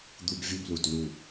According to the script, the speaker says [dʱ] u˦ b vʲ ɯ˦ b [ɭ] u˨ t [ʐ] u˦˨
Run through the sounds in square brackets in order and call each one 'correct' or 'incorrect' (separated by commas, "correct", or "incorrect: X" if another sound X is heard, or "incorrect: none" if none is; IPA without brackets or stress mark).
incorrect: d̪, incorrect: l, incorrect: l